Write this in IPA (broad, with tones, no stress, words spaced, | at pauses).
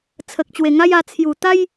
t͡sʰə˨k̚t͡ɕwe˨˩ŋa˦ja˧ t͡sʰju˨˩t̪a˦j